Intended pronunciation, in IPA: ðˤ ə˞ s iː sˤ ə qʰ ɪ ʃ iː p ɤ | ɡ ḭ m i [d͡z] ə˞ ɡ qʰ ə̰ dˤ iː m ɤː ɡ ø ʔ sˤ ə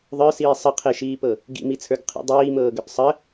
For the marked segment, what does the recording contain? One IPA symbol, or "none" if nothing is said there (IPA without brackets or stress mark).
t͡sʰ